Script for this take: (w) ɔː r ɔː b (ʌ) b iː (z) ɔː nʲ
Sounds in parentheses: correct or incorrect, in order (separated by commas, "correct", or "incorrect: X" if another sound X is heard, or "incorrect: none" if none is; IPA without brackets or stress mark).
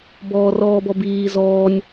incorrect: b, incorrect: ɔ, correct